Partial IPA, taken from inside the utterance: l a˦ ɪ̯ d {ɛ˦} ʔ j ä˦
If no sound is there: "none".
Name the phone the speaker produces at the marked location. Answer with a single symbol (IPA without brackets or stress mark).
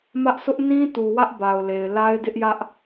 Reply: ɪ˦